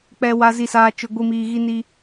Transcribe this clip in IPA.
k͡p ɛ˨ w a˨ z i˨ s aː˨ t͡ʃ ʊ˨ ɡʷ i˨ m iː˨ ɣ i˦ n i˦

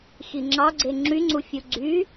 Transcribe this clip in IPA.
x i ŋ͡ǁ ɑ ɡ͡ǀ e ŋ͡ǁ y ŋ͡ǀ u fʲ u ɡ͡ǀ y

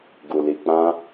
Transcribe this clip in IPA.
ɡ u˨ l i˨ k͡p ã˧

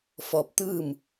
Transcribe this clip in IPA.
f ɔː˧ p̚ t̪ ɯː˥˨ m

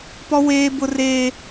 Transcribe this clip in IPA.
p ɔ˦ w eː˦ b ʊ˦ r eː˦

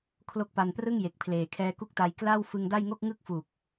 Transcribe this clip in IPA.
kʰ l o˦˥ k̚ p a˧ n p r ɯ˥˩ ŋ j e˨˩ k̚ pʰ l eː˨˩ kʰ ɛː˦˥ k u˥˩ k̚ t a˧ j k l a˥˩ w f ɯ˧ ŋ d a˥˩ j ŋ o˥˩ k̚ ŋ ɯ˥˩ k̚ f u˨˩ k̚

